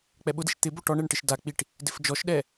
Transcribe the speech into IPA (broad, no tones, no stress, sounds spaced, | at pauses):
k͡p ɛ ɓ ʊ d i ʃ t̪ ɪ b o ʈ ɔ ɳ ɛ ɳ ʈ ɪ ʃ d a k͡p i ʈ | d ɪ f d͡ʒ ɔ ʃ ɗ ɛ